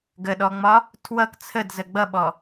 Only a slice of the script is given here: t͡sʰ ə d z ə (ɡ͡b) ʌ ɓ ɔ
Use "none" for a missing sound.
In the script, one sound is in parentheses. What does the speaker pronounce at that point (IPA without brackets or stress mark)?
ɡ͡b